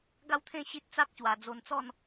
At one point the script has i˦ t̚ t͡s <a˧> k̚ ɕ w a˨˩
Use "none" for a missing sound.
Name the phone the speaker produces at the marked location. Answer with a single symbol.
a˦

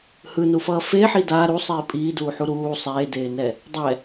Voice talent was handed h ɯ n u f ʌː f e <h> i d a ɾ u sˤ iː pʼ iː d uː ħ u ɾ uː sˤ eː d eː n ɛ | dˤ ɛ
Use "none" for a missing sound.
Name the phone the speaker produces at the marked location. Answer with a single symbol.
ħ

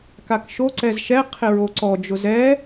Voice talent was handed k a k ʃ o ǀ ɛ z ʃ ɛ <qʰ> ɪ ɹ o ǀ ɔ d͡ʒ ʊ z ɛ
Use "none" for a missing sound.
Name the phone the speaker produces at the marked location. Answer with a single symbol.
qʰ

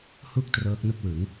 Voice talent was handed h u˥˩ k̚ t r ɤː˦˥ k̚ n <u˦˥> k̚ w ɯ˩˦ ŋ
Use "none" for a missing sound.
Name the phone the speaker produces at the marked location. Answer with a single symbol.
u˥˩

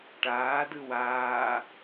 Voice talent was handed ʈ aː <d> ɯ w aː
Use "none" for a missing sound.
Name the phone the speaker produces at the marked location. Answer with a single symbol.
d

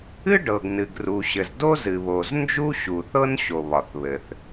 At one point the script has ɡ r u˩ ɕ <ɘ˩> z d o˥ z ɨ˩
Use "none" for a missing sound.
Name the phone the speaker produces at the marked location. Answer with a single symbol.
ɘ˩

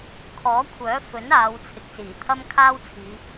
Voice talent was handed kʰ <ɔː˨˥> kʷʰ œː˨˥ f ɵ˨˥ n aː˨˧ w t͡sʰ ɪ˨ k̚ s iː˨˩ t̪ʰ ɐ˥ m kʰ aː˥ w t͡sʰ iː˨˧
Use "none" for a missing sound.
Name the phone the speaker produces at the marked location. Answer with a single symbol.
ɔː˨˥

